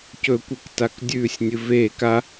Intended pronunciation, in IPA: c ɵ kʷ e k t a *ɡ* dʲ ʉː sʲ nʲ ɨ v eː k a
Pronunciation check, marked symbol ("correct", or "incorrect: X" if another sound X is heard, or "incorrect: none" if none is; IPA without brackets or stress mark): incorrect: k